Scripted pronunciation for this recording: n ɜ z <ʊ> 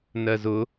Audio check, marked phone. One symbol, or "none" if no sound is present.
ʊ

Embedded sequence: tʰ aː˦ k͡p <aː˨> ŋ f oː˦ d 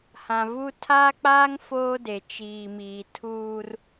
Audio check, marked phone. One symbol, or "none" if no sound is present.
aː˦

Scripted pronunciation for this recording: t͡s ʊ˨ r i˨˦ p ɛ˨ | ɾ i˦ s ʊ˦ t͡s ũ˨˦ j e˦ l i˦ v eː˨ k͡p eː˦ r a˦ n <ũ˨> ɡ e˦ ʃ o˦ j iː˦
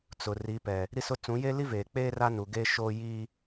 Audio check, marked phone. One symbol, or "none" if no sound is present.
u˨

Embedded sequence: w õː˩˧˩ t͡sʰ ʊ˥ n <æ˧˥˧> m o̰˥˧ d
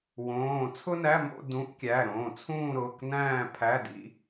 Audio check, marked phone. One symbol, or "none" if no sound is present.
æ˧˥˧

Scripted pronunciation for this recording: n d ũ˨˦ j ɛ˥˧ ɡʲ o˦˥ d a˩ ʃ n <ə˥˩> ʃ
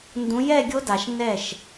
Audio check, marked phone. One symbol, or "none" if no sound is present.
ɛ˥˩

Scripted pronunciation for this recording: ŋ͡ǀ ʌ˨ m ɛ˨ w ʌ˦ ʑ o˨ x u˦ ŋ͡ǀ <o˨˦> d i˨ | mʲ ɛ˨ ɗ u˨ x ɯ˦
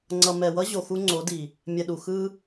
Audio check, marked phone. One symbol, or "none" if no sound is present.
o˨˦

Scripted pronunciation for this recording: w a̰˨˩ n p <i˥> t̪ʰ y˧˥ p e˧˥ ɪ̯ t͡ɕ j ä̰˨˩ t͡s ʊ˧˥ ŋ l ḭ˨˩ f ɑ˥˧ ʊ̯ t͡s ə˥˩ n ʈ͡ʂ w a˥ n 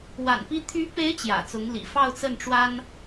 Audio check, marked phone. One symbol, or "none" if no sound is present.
i˥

